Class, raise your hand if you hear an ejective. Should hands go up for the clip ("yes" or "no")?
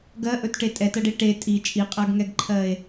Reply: yes